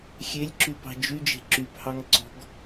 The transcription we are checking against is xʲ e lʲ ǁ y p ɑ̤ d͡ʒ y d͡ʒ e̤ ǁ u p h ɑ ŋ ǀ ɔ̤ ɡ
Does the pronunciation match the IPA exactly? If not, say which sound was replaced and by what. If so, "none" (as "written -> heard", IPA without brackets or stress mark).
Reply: u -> y